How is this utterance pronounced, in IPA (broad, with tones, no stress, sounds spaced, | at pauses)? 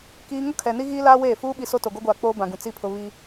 k iː˨ ŋ ʊ˦ kʰ ɛ˨ n i˦ ɣ iː˦ l aː˦ w eː˦˨ f uː˦ ɓ i˨ s o˦ t o˨ ɡ o˦ ɡʷ aː˨ k͡p oː˦ b ã˨ ɡ ũ˨ t͡s i˨ pʰ ʊ˨ β i˦